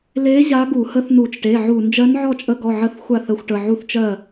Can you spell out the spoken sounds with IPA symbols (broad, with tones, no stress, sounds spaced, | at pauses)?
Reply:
l e˧˥ ʑ a˧˥ ɡ u˧˩˧ h ə˧˥ θ n u˧˩˧ t͡ʃ ʈ e˩˧˩ ʕ u˧˩˧ n d͡ʒ ɜ˧˥ n ʕ ɔ˥˨ t͡ʃʼ ə˧˥ ɡ ɔ˩˧˩ ʕ ə˥˨ θ xʷ a˥˨ θ ə˧˥ xʷ ʈ ə˩˧˩ ʕ u˥˨ θ t͡ʃ ɜ˥˨